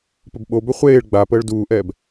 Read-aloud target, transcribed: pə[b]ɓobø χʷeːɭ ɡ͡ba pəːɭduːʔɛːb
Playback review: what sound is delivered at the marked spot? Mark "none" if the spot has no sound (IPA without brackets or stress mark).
b